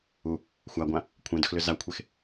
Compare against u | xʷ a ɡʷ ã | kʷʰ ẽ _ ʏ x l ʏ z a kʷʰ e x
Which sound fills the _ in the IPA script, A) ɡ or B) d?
B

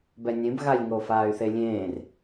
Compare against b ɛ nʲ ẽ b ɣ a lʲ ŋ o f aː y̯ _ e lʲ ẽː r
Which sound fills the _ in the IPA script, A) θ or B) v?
A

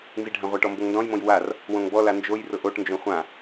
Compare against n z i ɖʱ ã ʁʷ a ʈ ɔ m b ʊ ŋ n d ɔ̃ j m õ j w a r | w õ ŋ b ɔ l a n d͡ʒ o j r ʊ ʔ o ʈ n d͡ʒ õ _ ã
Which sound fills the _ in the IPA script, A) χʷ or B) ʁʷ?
A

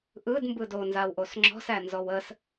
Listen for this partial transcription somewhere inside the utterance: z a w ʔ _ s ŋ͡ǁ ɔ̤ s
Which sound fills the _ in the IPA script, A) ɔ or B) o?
B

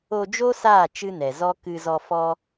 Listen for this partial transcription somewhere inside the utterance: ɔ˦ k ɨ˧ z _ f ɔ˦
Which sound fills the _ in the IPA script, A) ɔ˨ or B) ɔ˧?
B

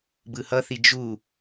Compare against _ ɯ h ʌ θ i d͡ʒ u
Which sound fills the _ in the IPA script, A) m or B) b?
B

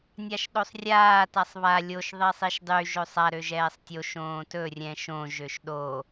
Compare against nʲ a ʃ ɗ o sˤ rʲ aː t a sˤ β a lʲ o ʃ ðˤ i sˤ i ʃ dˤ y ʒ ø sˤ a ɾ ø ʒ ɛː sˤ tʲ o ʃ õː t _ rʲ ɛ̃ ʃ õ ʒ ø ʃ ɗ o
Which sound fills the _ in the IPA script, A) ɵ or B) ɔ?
A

